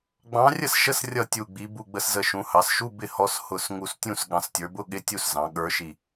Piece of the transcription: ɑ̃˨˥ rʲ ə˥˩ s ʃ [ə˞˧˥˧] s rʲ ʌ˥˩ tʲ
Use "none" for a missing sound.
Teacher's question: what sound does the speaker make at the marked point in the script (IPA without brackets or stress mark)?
ə˧˥˧